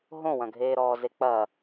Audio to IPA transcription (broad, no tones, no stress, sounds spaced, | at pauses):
ɦ õ w ɐ̃ ɡʱ eː ɾ ɔː z e k͡p ɐ